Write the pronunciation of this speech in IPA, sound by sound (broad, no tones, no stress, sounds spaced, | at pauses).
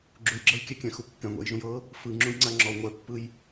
ɡ͡ǁ u j ɡ͡ǁ ɤ j kʲ ɛ kʲ ɛ̃ x u kː ɛ̃ ŋʷ ɛ̰ j ʒ ũ j ɤ | f ɯ ŋ͡ǁ ũ j ŋ͡ǀ a ŋ͡ǁ ɔ ŋʷ ɛ pː ɯ j